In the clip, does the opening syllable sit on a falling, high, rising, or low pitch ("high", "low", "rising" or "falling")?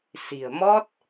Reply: low